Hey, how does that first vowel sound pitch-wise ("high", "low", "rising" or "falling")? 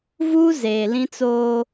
high